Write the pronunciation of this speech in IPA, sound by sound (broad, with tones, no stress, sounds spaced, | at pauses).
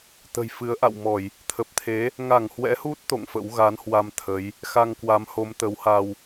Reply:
t̪ ə̤˨˩ j f ɨ˨˦ ə̯ ʔ a̰˧˨ w m ɔ˧˩˨ j | t̪ʰ ə˨˩ p̚ t̪ʰ e˨˦ | ŋ a˧˩ ŋ h w ɛ̰˧˥ h u˦˥ t̚ t̪ o̰˧˨ ŋ f ə̰˧˥ w ɣ a˨˦ n h w a˧ m t̪ʰ ə˨˦ j | x a˧ ŋ k w a˨˦ m h o˨˦ m t̪ ə˨˦ w h a˧ w